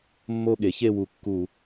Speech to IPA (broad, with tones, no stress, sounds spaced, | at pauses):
mː o˥˧ ɠ e˩˥ ç e˥˧ w u˧˩˧ kː u˧˩˧